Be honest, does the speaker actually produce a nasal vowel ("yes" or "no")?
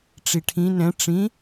yes